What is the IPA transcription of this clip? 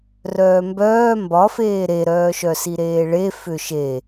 r œː m b œː m b ɒ f eː ɾ e ɾ œː ʃ œ s i ɾ eː ɭ e f ʏ ʃ e

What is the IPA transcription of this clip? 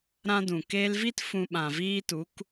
ɾ ã˦ d ũ˨ k eː˧ l v i˦ t f ũ˧ ɓ ã˨ v iː˦ t u˨˦ k

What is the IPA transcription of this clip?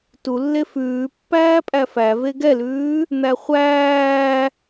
t u lː e f ʉː pː æː pʼ æ f æ v e ɡ ɛ l ʉː | n̪ æ χʷ æː

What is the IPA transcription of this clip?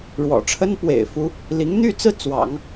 ɻ w ɔ̰˨˩ ʈ͡ʂʰ ə˥ n p w ḛ˨˩ ɪ̯ f u˥ | l i˧˥ ŋ n̪ y˥˧ t͡s ɹ̩˥˩ t͡s w ɑ̰˨˩˦ ŋ

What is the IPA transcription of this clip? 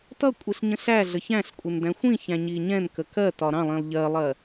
t ʌ kʷʼ i ɬ ɲ ə̃ ɬ æ ɮ ə ç æ̃ ɬ kʷʼ ɪ n d æ̃ xʷ ĩ ç æ̃ ɲ i ɲ ɛ̃ n k ə k ɜ t ɒ ɾ ɑ̃ lˠ ĩ lˠ ʎ ɜ lˠ ɜ

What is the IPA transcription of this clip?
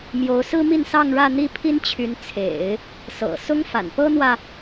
m j o˧˥ ʊ̯ s ɹ̩˥ m i˥˧ n s ɑ˥˧ ŋ ɻ ä˥˧ n̪ i˥˩ pʰ i˥ n t͡ɕʰ y˧˥ n t͡sʰ ḛ˨˩˦ ɪ̯ | s ɤ̰˨˩ s ʊ˥ ŋ f a̰˨˩ n p ɤ˥ n̪ w ä˨

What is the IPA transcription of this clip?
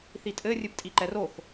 θ i tʼ ɘ rʲ ɨ p tʼ i ǃ ɛ r o x

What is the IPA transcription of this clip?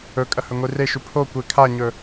ɵ kʼ ɐ h ɵ ŋʷ i r e ʃ ʉ pʰ o kʷ e kʰ a ɲ ɵ

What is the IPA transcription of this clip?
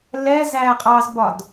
l ɛ z æ qʼ ɑ z b ɒ d

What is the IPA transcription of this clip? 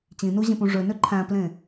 t͡ɕ ĩ n u ʑ ẽ p ũ ʐ ø n ø ǃʰ æ̃ p l ẽ

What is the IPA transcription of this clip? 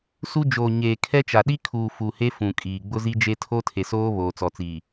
s u˦ d͡ʒ oː˨ ɲ eː˨ kʰ ɛ˦ t͡ʃ a˨ ɗ i˦ kʰ uː˨ f u˨ h e˦ f ũ˨ kʼ iː˨ ɡ͡b ʊ˦ z i˦ d͡ʒ e˦ tʰ o˦ tʰ e˨ s oː˦ β oː˨ t͡s ɔ˨ t͡s i˨

